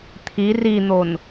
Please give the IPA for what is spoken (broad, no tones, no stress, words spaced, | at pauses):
t̪ʰi rin̪on